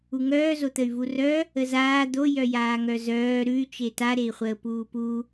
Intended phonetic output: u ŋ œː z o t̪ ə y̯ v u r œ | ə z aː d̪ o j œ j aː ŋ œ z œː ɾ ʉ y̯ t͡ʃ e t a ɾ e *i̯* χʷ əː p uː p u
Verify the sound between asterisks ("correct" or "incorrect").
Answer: correct